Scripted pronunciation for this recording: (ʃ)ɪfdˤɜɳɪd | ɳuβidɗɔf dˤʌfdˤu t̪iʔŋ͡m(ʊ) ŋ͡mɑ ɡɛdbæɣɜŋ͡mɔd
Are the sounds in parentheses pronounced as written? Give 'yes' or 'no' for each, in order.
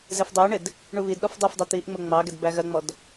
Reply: no, yes

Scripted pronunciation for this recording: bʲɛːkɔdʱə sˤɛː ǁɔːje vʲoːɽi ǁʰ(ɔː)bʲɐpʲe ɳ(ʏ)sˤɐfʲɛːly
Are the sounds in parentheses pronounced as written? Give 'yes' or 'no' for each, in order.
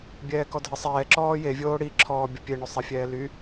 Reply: yes, yes

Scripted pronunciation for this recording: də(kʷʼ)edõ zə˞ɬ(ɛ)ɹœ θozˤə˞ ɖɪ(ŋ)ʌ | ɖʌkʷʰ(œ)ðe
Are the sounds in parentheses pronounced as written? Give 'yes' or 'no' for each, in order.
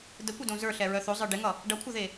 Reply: no, yes, yes, yes

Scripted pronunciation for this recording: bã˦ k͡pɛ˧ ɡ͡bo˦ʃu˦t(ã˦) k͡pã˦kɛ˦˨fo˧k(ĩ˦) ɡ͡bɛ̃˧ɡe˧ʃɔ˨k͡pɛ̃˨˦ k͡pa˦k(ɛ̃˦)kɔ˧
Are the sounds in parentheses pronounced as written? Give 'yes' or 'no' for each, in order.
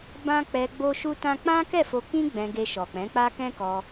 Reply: yes, yes, yes

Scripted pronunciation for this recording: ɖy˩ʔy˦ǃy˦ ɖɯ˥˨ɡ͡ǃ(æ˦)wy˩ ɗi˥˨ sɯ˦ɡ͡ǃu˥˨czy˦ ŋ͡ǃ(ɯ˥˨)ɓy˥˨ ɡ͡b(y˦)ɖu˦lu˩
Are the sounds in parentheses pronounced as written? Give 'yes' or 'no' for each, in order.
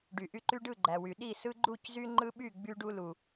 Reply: no, no, yes

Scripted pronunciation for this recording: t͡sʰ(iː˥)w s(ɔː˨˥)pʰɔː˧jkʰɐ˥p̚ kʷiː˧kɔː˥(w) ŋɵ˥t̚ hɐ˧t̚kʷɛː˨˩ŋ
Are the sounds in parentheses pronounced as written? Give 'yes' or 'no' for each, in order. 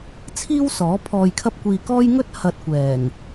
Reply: yes, yes, no

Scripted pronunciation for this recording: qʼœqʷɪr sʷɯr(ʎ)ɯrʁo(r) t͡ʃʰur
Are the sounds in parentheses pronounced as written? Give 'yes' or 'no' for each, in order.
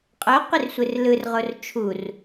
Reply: no, yes

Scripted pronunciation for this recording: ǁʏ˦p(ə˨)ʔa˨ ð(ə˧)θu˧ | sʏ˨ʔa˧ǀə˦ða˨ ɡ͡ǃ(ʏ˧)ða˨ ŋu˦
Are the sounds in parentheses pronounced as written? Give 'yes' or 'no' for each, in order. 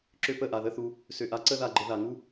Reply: no, no, no

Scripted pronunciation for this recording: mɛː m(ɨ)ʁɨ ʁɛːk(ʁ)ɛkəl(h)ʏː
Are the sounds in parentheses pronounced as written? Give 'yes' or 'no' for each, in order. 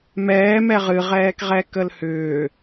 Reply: no, yes, yes

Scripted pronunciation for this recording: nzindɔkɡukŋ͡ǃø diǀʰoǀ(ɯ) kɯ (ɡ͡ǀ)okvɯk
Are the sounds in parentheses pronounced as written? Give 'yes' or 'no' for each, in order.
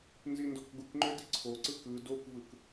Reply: yes, no

